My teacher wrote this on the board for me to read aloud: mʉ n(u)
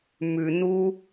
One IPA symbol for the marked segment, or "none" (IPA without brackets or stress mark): u